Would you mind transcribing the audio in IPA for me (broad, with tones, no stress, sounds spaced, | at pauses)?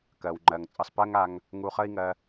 k ɜ˨ w ŋ͡ǃ ɜ˨ ŋ t͡sʼ ə˧ sˤ p ɜ˦ ŋ a˧ ŋ | ŋ u˧ χ ə˦ i̯ ŋ ɜ˧